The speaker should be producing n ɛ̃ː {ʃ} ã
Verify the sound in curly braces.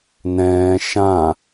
correct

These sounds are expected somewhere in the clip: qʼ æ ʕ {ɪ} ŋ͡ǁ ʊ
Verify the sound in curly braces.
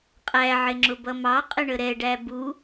correct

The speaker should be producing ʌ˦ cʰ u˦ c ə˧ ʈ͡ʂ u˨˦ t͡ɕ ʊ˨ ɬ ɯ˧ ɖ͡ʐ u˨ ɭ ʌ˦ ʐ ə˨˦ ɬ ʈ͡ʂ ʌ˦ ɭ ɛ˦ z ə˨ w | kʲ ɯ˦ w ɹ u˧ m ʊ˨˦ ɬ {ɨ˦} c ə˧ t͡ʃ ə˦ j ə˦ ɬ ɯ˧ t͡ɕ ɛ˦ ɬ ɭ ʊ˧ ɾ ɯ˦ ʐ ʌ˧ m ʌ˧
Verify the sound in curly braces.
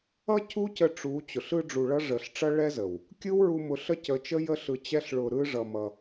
incorrect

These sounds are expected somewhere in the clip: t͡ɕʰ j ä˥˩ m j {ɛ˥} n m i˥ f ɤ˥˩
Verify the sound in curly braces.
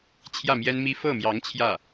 correct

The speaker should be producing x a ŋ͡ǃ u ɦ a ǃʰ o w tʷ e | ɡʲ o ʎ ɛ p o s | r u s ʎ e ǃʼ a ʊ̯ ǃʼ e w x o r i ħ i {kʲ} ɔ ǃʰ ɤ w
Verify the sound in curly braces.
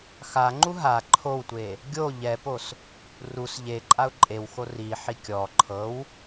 correct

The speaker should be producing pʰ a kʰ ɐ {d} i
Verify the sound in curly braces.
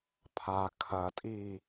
incorrect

